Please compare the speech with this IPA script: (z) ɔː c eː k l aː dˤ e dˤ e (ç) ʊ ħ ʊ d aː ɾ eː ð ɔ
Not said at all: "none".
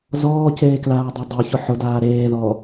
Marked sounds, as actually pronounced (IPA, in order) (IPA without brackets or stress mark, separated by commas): z, ç